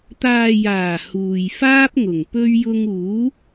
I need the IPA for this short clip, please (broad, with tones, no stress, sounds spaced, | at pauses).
t̪ aː˨ j aː˨˩ h uː˨ j f aː˥ p̚ ŋ ʊ˨˩ ŋ p ɵ˧ ɥ j ʊ˧ ŋ uː˨˥